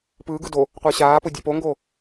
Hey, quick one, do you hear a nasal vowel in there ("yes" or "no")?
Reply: no